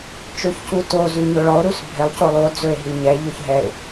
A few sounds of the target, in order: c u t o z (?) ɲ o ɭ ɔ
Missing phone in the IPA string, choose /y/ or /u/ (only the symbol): y